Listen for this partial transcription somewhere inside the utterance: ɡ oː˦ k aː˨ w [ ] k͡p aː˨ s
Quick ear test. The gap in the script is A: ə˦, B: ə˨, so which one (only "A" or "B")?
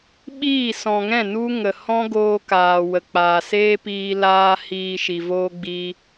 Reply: B